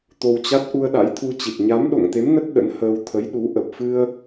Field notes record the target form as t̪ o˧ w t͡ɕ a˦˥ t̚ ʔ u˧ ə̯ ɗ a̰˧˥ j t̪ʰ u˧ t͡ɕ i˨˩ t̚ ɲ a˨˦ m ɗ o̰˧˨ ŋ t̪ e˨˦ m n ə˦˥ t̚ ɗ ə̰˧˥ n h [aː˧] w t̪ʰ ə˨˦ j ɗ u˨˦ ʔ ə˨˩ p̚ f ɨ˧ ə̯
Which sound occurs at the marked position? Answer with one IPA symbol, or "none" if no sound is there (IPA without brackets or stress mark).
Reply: əː˧